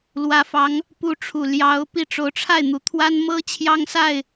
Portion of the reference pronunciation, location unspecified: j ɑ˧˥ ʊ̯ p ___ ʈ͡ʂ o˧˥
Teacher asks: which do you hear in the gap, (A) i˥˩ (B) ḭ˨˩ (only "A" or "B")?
A